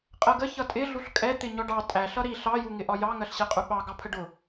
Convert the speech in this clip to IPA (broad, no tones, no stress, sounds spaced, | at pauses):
qʼ ɜ ɡ ə ç ʌ tʼ ɪ ɮ u ɬ kʼ ɛ t̪ ɪ ɲ ɔ ɖ ɑ tʼ æ ɬ ʌ ɾ i ɬ ɑ j u ŋ ɪ ʔ ɒ j ɑ ŋ ɜ ɬ ɕ ɛ qʼ u ɓ ɑ ɡ ɑ pʰ ə ɖ ʊ